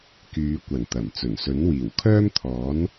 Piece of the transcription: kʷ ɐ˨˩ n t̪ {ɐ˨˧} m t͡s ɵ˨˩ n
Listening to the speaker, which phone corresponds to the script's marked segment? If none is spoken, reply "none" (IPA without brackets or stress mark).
ɐ˨˩